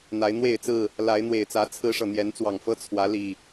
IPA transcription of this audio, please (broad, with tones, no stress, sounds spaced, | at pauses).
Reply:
n̪ a˨˦ ɪ̯ n̪ w e˥˨ ɪ̯ t͡s ɹ̩˥˨ | l a˨˦ ɪ̯ n̪ w e˨˩ ɪ̯ t͡s ä˨˦ t͡sʰ ɹ̩˦ ʂ ɤ˨ n̪ j ɛ˨˦ n t͡s w ɑ˨˩ ŋ f ɤ˦ t͡sʰ w ä˨˦ l i˨˩